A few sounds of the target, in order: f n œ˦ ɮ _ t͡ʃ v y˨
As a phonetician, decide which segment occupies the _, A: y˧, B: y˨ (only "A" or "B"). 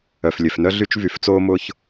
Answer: A